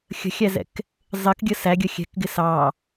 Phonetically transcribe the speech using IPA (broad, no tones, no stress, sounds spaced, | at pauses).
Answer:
xʲ ə̤ xʲ æ z ɛ̰ k | zˤ ɪ k ɡʲ ə s æ ɡʲ ə xʲ ɛ̤ k ɡ ɪ s ɑ